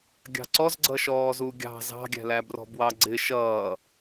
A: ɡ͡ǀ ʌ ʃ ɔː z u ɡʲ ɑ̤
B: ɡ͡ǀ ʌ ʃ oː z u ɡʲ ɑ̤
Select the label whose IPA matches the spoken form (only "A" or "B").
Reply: A